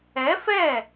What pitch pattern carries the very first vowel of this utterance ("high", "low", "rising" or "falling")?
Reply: rising